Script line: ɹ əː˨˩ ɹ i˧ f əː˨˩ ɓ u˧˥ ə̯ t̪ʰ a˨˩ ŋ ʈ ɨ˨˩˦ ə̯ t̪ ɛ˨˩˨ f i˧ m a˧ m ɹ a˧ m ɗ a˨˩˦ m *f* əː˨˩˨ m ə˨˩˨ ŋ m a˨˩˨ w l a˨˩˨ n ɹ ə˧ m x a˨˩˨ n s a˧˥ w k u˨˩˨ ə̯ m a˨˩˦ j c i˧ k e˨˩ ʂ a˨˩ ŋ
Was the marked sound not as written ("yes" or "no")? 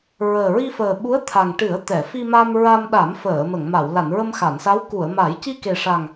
no